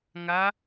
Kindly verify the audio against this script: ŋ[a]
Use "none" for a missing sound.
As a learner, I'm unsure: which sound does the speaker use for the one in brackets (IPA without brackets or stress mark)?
a